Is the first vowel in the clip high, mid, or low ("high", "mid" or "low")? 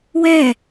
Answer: mid